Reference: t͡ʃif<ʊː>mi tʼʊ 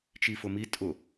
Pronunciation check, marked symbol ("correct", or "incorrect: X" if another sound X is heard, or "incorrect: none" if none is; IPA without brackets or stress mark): incorrect: ʊ